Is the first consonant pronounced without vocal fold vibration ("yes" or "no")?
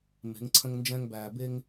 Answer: no